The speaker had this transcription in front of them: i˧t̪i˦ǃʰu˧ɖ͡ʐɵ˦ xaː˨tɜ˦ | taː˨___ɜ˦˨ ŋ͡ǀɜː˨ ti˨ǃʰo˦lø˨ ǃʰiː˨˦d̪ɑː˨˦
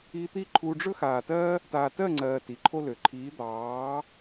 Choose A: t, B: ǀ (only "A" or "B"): A